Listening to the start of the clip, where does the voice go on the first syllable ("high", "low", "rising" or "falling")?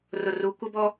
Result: low